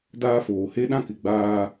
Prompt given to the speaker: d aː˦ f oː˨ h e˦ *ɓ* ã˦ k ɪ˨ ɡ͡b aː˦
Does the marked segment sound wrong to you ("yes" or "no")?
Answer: yes